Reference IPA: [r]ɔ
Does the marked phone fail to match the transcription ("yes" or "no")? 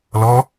yes